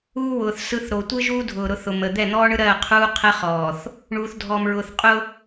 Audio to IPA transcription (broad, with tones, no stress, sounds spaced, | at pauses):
uː˦ w ʊː˨ θ s ɯ˦ θ ɾ o˨ tʷ ɯ˦ ʒ uː˦ dʱ ʊː˨ ɾ ʊ˨˦ θ ʊ˨ m ə˨ d̪ ɛ˦˨ n̪ ɔː˦ ɳ ɯ˦ ɾ ɜː˦˨ qʰ uː˦ qʰ ɜ˦ χ ɔː˨ θ | ɳ uː˨ θ dʱ ɔː˨ m ɹ ʊː˨ θ qʼ ʊ˦